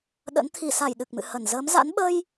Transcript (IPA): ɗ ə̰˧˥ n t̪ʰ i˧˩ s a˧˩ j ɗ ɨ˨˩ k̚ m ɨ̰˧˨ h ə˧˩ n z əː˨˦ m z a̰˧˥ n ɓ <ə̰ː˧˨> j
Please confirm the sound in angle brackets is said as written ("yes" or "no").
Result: no